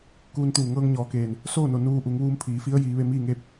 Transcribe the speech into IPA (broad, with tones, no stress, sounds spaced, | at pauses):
k uː˧ n t̪ uː˧˩ ŋ ɤː˧ ŋ ɲ ɔː˩˧ k eː˩ n | s oː˥˨ n o˧˩ n uː˧ ʔ u˩˧ ŋ ʋ uː˧ m pʰ iː˩˧ f i˧˥ ə̯ j iː˩˧ ʋ e˧ m iː˥˨ ŋ e˥˨ p̚